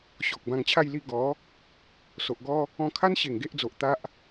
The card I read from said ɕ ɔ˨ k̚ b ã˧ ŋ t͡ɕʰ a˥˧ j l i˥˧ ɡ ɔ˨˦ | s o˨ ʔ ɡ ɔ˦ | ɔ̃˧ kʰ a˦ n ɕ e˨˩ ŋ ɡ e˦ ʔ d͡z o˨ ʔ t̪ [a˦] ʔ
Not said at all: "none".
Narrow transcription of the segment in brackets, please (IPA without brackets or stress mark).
a˦